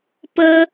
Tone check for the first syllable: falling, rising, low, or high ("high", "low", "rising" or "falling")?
high